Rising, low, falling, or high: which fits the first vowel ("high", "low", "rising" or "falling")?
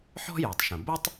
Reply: high